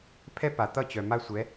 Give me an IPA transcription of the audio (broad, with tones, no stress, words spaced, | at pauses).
pʰɛ˥pa˩t̪ʌ˥˩ t͡ɕœ˩ma˥sʷɛ˩˥